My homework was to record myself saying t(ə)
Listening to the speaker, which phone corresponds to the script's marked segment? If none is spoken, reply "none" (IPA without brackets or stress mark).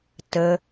ə